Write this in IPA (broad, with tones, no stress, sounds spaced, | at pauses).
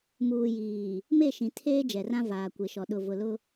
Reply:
m uː˨ j iː˨ | m e˦˨ ʃ ĩ˨ tʰ eː˦ d͡ʒ ɛ˨ r ã˦ v aː˨ kʷ e˨ ʃ ɔ˨ ɗ ʊ˨ v ʊ˨ l ʊ˦